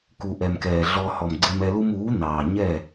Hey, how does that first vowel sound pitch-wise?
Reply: low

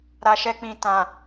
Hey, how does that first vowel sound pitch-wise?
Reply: low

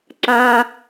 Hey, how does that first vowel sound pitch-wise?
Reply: low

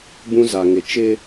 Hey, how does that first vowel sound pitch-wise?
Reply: high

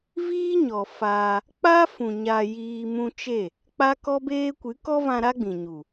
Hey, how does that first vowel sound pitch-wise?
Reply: high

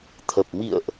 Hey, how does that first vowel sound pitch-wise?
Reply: low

